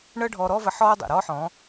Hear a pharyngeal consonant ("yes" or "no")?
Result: yes